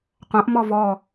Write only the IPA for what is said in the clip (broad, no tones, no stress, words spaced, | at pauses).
qʷãʔ mɔvɔ